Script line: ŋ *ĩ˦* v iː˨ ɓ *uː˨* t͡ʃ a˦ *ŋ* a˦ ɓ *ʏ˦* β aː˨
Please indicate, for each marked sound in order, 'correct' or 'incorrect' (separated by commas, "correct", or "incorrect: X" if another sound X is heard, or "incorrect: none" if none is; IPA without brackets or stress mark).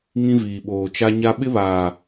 correct, incorrect: oː˨, incorrect: ɲ, incorrect: ɪ˦